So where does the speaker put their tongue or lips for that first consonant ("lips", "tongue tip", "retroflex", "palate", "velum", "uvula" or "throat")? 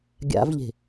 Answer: velum